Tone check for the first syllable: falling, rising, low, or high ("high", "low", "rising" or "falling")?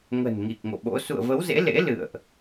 low